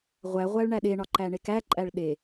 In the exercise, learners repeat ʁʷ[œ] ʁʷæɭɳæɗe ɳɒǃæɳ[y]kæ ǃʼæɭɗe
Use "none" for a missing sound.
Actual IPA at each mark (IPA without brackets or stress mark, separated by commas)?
æ, e